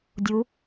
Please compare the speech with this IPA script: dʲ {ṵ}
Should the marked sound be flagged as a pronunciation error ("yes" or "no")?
yes